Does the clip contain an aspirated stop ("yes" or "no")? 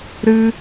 no